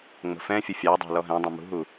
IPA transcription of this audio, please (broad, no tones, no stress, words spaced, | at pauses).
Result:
ŋ͡mə̤fɛ̃fʲə fʲɑdˤɑ̤ lɔɦɛ̃dˤɑ̃ mṳɦu